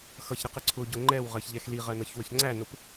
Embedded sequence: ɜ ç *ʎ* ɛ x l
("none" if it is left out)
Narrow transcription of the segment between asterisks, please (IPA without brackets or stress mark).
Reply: ʎ